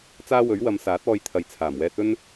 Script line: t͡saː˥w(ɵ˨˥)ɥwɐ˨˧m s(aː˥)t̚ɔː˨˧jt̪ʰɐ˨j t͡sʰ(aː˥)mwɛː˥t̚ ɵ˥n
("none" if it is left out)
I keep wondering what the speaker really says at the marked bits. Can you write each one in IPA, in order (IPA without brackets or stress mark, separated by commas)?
ɵ˨˥, aː˨˥, aː˨˩